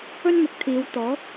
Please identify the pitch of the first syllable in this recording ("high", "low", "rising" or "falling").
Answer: high